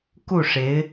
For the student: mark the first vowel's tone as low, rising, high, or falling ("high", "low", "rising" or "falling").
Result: falling